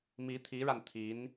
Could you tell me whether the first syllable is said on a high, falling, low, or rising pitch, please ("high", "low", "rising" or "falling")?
rising